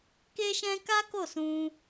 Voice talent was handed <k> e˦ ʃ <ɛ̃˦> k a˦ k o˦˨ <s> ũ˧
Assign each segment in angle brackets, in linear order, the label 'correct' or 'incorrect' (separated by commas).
correct, correct, correct